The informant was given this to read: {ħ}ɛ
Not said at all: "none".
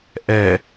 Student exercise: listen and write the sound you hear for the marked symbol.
ʔ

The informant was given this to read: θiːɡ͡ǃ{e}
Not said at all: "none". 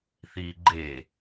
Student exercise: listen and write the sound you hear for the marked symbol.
e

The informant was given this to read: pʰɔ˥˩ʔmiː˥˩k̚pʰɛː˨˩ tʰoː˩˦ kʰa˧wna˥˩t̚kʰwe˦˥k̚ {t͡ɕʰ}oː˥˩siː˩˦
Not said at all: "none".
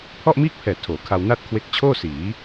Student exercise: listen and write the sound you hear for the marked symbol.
t͡ɕʰ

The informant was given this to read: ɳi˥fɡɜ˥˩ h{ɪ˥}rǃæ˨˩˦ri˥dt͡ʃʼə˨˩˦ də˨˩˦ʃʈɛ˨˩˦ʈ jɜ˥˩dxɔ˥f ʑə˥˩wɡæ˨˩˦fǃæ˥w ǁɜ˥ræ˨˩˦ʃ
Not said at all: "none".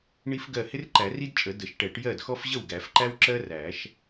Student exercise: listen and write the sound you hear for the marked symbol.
ɪ˥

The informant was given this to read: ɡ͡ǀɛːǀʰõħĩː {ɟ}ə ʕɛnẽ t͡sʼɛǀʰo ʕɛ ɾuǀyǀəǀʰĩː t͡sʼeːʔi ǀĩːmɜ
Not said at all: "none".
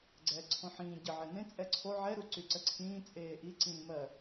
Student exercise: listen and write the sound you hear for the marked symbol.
ɟ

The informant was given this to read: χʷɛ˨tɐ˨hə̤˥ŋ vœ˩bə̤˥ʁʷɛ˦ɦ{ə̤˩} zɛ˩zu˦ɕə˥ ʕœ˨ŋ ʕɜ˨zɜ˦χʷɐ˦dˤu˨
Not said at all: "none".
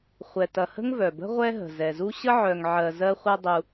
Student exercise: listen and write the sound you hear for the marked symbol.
ə̤˩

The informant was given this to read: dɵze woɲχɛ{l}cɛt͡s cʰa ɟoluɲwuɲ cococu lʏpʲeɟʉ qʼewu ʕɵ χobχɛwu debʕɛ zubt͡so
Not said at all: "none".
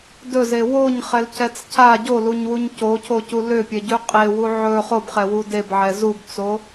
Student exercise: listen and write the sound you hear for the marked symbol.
l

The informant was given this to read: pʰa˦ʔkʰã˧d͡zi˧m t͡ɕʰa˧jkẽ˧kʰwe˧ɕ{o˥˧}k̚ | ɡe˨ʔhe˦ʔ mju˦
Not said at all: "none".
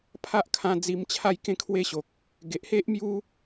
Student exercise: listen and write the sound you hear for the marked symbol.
o˨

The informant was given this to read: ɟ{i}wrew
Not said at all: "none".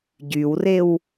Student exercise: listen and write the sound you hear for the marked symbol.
y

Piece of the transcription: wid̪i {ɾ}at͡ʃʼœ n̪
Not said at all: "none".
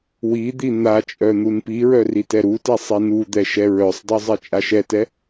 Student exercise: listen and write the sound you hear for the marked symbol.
n̪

